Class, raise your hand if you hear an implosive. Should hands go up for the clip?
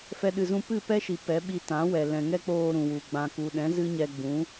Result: yes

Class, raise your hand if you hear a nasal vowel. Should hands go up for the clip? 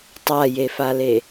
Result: no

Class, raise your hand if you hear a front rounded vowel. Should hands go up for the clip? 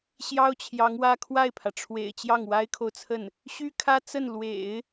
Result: yes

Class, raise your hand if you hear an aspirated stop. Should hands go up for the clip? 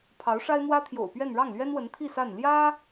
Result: yes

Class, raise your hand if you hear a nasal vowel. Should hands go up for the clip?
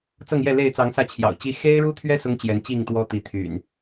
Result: no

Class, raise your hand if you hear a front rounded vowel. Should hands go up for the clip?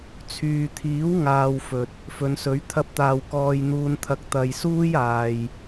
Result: yes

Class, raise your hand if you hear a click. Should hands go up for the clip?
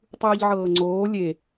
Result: yes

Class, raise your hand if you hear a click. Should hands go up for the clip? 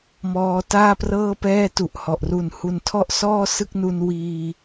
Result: no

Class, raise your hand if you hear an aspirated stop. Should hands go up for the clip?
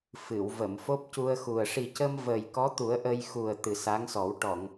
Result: no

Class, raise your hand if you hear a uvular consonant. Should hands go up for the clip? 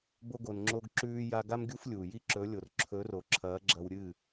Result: no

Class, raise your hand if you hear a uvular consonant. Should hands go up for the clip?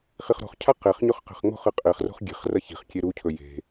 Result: yes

